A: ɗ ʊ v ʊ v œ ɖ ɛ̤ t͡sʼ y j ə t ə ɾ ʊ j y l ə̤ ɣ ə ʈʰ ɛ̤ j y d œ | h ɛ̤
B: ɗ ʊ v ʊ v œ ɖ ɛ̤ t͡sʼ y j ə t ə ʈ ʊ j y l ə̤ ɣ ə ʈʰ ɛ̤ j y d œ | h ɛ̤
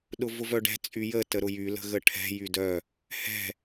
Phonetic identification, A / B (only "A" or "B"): A